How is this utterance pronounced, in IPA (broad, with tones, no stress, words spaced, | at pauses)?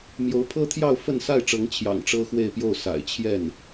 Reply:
mjo˧˥ʊ̯pʰɤ˥t̪ʰjɑ˥˧ʊ̯ fə˥˧nsa˥˩ɪ̯ ʈ͡ʂɤ˧˥ŋt͡ɕʰjɑ̰˨˩ŋ ʈ͡ʂɤ˥xwe˥˧ɪ̯pjo˥˩ʊ̯ sa̰˨˩ɪ̯t͡ɕʰjɛ˥˩n